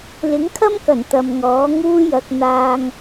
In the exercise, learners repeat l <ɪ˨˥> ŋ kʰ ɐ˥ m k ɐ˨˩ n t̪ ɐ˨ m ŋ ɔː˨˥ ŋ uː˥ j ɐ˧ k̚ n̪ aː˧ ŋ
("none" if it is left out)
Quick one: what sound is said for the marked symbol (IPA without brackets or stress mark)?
ɪ˨˥